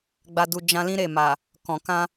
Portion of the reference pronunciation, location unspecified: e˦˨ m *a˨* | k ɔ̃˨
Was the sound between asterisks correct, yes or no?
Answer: yes